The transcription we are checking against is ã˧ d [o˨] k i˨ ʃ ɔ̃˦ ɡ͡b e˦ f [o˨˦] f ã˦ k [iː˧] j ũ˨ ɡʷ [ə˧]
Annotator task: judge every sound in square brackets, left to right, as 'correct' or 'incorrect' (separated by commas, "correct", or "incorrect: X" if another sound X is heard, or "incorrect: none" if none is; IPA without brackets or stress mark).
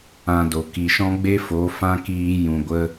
correct, correct, correct, correct